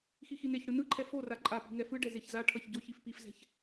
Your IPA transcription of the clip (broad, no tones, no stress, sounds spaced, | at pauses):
x i x i n e ç ɽ ɯ n ɯ ǃʰ ɛ f o r a ǃʼ a p i̤ ŋ ɛ f ɯ ɖ ɛ z e ç z a ʈʰ ʌ ç ɟ o ç i f p i f z ɛ̤ ç